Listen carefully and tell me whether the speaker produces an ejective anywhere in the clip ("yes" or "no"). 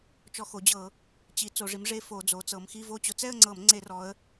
no